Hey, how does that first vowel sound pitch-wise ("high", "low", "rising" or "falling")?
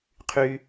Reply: high